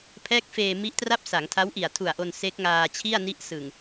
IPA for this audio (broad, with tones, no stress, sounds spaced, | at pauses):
pʰ ɛː˦˥ k̚ f eː˧ m i˦˥ ʔ t r a˥˩ p̚ s a˩˦ ŋ tʰ a˦˥ w ʔ i˨˩ a̯ tʰ u˨˩ a̯ ʔ o˧ n s e˦˥ k̚ ŋ aː˧ t͡ɕʰ i˥˩ a̯ n i˦˥ ʔ s ɯ˨˩ ŋ